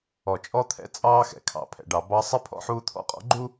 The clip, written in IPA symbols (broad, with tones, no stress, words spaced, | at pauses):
ɔ˨t͡ʃʼɔ˦ t̪ʰɛ̰˦ t͡sʼɑː˦xɛ̰˨ kʰɑ̰˨pʰɛ̰˨ɖɑ˨ bɑ˦ sˤɪ˦ pʰɔ̰˦ħuː˦t̪ʰɔ̰˦qʼɔ̰˦ ɡ͡ǃu˦